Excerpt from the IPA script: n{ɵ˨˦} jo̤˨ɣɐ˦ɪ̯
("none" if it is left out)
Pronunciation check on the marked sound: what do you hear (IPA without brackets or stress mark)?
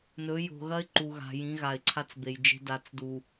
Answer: ɵ˨˦